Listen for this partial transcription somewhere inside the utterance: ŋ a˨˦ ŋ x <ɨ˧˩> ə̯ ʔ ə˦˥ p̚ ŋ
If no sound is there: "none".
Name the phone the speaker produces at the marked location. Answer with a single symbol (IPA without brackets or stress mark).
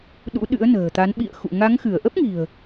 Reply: ɨ˧˩